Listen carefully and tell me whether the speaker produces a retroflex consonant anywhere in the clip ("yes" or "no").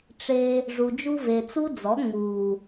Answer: yes